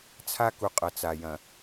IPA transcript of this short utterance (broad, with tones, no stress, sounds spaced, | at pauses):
t͡sʰ a˦ k u˨ qʼ ɐ˨ t͡s a˨ j ɐ̃˨